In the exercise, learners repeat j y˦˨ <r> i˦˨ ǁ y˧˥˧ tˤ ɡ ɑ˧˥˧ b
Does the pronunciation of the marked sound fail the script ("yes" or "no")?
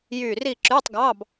no